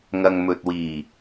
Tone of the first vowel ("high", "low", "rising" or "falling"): low